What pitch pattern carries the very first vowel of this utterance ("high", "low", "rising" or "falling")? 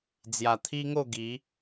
low